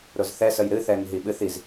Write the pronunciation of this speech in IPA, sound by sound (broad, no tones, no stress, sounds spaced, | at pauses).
ɾ ʊ z θ ɛ s ə j ɾ ɨ θ ɛ ŋ ɦ i ɓ ɨ θ i z